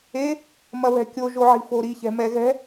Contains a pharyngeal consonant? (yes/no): yes